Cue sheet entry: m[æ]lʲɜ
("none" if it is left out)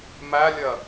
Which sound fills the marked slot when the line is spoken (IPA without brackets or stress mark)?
æ